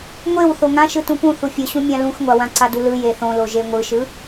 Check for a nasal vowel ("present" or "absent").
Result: present